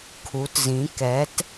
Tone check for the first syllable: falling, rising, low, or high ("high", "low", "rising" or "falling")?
rising